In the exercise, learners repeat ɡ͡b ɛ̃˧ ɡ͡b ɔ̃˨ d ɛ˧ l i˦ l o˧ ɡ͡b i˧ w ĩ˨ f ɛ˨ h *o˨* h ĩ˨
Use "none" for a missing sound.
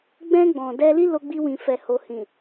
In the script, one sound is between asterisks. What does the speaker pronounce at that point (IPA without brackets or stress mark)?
o˨